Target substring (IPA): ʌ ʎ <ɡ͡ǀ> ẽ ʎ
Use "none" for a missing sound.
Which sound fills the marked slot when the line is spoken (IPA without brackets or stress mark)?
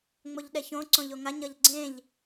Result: ɡ͡ǀ